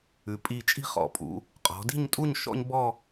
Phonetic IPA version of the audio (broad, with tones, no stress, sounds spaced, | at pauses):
ʉ˩˧ pʼ i˧˩ t͡ʃʼ i̤˥˧ χ ɔ̰˩˧ pʼ ṵ˩˧ | qʼ ɔ̤˩˧ d i̤˥˧ ɲ tʼ u˥˧ ɲ ʃ ɔ̰˥ ɲ b ɔ˥˧